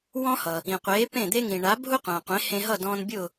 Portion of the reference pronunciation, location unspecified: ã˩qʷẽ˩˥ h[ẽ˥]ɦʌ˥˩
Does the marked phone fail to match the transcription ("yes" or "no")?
yes